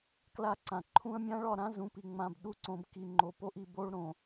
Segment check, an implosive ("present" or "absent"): present